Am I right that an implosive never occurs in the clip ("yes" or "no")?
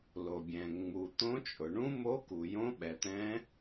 no